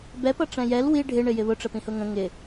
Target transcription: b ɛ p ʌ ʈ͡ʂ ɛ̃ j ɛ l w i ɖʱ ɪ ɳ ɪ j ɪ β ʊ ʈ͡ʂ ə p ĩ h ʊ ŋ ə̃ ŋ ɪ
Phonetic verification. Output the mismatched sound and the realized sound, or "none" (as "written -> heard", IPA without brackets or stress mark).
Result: none